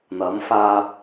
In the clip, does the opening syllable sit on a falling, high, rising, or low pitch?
rising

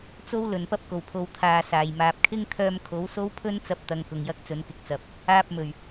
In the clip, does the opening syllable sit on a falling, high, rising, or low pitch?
high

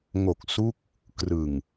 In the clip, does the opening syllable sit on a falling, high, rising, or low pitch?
low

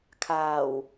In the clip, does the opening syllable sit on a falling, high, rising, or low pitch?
low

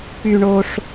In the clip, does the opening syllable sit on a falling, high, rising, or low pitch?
high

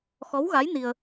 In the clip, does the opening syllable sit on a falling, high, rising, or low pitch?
rising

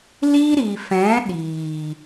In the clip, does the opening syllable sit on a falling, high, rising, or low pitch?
high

